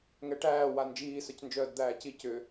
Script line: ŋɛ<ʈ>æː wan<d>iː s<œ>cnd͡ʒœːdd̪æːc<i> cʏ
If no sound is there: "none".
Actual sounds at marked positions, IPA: ʈ, d͡ʒ, œ, i

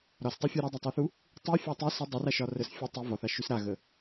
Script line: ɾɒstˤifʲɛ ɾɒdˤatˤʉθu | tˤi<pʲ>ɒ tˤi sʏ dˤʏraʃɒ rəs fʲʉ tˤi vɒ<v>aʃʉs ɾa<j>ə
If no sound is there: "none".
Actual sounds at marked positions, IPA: fʲ, θ, ɣ

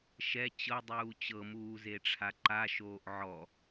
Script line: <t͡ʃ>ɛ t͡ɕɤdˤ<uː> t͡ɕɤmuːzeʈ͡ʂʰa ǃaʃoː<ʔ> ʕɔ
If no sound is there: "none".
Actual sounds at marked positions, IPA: ʃ, uː, ʔ

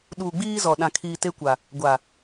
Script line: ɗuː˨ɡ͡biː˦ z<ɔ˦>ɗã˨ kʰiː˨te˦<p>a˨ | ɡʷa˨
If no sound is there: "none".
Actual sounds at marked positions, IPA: ɔ˨, kʷ

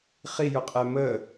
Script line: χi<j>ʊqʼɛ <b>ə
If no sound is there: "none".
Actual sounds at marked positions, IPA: j, m

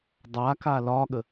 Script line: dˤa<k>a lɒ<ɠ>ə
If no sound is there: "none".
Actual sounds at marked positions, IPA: k, ɠ

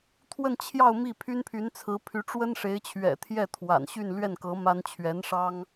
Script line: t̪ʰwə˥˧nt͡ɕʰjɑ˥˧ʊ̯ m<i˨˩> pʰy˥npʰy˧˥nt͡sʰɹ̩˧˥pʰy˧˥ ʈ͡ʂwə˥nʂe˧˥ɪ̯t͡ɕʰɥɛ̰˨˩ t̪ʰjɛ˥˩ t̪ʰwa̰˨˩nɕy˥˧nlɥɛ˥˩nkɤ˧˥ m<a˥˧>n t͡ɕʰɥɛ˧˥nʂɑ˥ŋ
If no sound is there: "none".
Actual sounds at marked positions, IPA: i˥˩, a˥

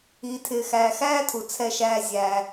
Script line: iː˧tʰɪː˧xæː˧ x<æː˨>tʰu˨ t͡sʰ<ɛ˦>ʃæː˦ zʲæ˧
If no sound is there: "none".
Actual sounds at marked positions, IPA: æː˦, ɛ˦

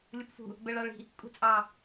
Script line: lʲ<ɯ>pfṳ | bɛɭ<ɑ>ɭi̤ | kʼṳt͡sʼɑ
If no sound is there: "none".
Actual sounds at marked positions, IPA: u, ɑ

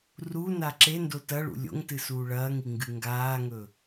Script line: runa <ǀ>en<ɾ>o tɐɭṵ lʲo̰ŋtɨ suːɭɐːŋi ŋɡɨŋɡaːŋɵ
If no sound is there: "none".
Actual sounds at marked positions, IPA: ǁ, d

